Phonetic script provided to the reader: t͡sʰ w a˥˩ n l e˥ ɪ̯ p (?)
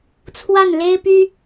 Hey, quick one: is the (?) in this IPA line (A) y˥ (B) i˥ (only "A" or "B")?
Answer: A